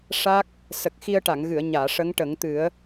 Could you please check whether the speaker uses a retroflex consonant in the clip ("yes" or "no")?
yes